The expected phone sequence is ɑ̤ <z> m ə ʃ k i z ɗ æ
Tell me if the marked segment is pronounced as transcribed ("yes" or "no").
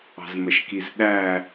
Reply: yes